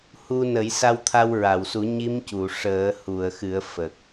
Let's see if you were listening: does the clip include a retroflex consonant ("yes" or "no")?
yes